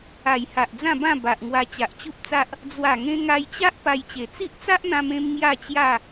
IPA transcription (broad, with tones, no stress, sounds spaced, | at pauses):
a˨˩ j h a˨ ʔ d͡z ã˥˧ b ã˥˧ b a˨ ʔ ŋ w a˧ t͡ɕ a˨ ʔ t͡ɕ u˦ p̚ t͡s a˦ ʔ | d͡z w a˨˩ ŋ ẽ˧ ŋ a˧ j t͡ɕ a˦ ʔ p a˧ j t͡ɕ e˨˩ t͡s i˦ ʔ t͡s a˦ ʔ n̪ ã˧ m ẽ˧ m ŋ j a˥˧ t͡ɕ j a˥˧